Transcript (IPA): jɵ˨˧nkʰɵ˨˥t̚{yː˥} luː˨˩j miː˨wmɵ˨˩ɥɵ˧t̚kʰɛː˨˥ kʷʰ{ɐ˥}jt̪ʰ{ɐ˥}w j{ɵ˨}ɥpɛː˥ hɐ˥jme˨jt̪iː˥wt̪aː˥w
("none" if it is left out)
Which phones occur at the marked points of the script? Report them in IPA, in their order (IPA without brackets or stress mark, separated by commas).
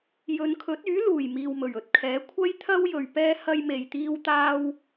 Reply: yː˨˥, ɐ˥, ɐ˥, ɵ˨